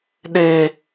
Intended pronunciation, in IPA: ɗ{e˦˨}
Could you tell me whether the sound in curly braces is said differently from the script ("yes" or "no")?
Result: yes